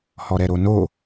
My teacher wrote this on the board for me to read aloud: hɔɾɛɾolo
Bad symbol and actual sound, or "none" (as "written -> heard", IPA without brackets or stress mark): l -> n